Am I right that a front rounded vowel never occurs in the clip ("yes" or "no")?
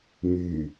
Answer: no